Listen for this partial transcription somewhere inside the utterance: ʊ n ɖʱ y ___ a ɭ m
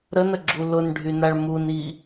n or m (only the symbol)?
n